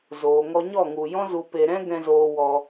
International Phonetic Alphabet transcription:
zoː˨ŋɔ˧ɲɔ˦˨ŋu˨ jɔ̃˦zu˧pe˧ɾɛ̃˦ ɡɛ̃˧zoː˧wɔ˧

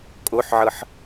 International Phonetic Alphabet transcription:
kʼoħʕɤħ

